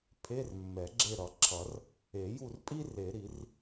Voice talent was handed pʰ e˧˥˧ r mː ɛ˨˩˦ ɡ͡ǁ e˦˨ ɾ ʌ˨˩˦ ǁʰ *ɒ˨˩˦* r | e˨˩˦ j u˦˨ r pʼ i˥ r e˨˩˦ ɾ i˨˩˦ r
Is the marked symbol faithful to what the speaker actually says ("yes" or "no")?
no